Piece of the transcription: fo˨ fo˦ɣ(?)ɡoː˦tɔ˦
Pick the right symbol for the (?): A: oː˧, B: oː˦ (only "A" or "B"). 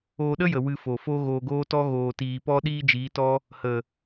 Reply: A